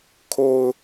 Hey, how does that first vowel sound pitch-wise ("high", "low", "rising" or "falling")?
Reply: low